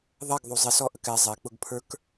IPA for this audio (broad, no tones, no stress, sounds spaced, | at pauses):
ðˤ ɛ ɡ ðˤ u zˤ ɪ s ɔ ʔ ə k ɛ zˤ ɛ k͡p ʊ ɡ pʰ ə˞ k